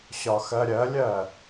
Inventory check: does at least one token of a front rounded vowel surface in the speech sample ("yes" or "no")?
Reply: no